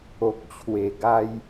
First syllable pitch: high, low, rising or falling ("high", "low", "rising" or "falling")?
low